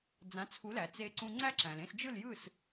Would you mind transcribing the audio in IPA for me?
d͡z ã˩˥ t͡sʰ u˩˥ l æ˩ t͡s e˧ ǀ ũ˧ ŋ͡ǀ æ˥ ǁ æ̃˩ l ẽ˥˩ s d͡ʒ ɯ˥˩ l j ɯ˥˩ s

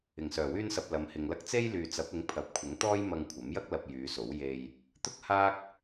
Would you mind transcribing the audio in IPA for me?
ɪ˨˩ ŋ s œː˨˩ w yː˧ n s ɐ˨ p̚ l ɐ˨˧ m h ɪ˨ ŋ l ɐ˥ k̚ t͡s e˥ j l yː˨ t͡s ɐ˨˥ p̚ ɪ˨˥ ŋ pʰ ɐ˨ p̚ kʷʰ ɪ˨˥ ŋ t̪ ɔː˥ j m ɐ˧ ŋ kʷʰ ɐ˨˥ m j ɐ˥ k̚ l ɐ˨ p̚ j yː˨˧ s o˨˥ w j e˨ j | t̪ ʊ˥ k̚ h aː˥ k̚

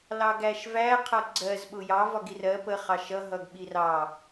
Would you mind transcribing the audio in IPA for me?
l ɑ ɡ æ ʃ v æ qʰ ʌ ɡ͡ǀ ɜ z ɓ ʊ j ɑ v ɒ ɡ i r ɜ p ə χ ɑ ʃ ʌ ɦ ʌ ɡ ɓ i r ɑ

